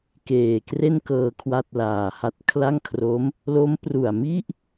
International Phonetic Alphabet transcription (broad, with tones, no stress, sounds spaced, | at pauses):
k eː˨˩ k r e˥˩ n k ɤː˧ kʰ w a˥˩ t̚ l aː˨˩ h a˥˩ t̚ kʰ l a˥˩ ŋ kʰ r o˦˥ m | l o˦˥ m p r u˨˩ a̯ m i˥˩ ʔ